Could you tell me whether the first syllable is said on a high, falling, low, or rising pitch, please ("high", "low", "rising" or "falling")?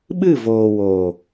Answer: falling